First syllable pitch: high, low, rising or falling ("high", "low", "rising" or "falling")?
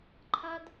high